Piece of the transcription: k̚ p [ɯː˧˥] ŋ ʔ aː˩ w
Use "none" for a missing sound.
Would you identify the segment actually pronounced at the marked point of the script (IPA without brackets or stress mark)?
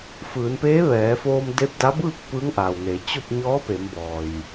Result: ɯː˧˥